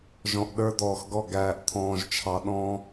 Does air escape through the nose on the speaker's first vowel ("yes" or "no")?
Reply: yes